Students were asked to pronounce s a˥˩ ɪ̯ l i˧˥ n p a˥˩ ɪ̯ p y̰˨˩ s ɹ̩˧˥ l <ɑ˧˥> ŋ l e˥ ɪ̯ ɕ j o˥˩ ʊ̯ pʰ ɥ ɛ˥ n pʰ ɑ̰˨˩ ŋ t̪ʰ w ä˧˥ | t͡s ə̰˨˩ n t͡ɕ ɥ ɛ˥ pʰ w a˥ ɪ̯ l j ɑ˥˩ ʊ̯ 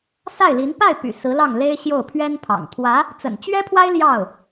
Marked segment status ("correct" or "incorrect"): incorrect